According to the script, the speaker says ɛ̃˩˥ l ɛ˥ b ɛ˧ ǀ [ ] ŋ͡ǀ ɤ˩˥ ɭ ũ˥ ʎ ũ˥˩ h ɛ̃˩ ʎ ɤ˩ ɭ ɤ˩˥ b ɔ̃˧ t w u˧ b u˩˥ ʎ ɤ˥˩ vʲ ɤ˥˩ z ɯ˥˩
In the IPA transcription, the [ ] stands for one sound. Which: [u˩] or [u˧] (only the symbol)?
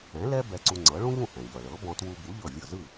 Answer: u˧